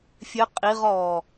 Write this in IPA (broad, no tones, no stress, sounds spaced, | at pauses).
fʲ ɘ qʼ i ʁ ɔː